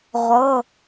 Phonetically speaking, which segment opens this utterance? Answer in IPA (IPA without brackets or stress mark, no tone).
ʁʷ